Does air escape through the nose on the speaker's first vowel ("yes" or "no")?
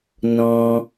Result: yes